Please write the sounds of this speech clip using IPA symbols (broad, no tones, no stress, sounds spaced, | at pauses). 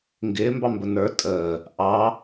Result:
ŋ ɡ ɪː m b ɑ m b ə n ə˞ tʼ əː | ʔ ɑ